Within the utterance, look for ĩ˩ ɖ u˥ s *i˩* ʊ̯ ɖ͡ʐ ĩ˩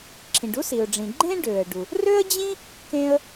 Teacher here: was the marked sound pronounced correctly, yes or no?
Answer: yes